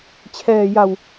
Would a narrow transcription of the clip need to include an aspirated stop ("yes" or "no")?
yes